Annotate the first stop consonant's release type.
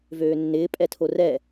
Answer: ejective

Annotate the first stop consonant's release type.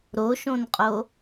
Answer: ejective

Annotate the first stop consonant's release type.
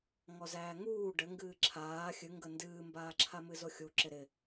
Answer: plain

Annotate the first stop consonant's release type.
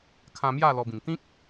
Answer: aspirated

